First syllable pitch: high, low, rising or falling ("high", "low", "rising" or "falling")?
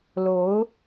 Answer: rising